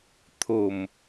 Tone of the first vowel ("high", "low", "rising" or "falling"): low